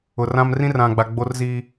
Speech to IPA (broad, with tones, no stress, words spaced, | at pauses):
ʊ˨rã˦m rĩ˦rã˨ɡ͡ba˨ ɡ͡bo˦rziː˦